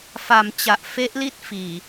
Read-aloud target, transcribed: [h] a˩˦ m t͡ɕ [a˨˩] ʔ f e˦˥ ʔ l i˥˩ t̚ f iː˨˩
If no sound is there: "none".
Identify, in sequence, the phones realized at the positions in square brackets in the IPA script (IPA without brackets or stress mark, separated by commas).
f, a˨˩